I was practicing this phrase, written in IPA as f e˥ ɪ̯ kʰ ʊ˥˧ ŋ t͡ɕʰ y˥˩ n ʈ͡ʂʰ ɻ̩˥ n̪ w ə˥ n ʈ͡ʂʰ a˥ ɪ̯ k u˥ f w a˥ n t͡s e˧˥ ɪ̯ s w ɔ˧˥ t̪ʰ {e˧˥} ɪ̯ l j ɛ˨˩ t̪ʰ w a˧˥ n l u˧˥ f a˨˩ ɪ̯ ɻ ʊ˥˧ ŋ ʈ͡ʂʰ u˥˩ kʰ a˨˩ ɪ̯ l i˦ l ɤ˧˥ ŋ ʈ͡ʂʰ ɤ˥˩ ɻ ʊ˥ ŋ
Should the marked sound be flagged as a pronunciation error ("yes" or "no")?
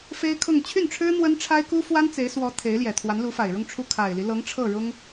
no